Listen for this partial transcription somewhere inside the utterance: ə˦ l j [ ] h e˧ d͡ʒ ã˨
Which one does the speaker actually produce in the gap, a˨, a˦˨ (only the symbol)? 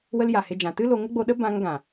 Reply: a˨